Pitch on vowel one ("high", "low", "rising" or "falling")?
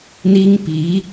high